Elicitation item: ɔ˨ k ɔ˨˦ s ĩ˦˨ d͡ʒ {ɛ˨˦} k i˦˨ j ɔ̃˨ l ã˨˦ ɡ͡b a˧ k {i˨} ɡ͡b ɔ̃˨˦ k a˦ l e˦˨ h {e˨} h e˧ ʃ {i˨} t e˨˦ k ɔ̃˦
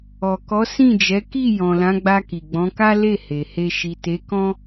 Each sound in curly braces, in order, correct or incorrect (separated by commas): correct, correct, correct, correct